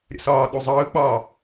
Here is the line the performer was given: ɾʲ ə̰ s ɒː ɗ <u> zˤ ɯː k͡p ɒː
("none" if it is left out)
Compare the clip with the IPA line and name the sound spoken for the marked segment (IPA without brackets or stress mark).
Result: u